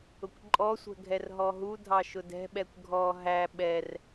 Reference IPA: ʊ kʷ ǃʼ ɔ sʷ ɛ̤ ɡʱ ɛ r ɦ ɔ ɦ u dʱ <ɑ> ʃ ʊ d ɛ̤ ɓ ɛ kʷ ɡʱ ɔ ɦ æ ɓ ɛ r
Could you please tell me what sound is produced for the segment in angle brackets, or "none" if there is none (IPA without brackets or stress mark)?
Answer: ɑ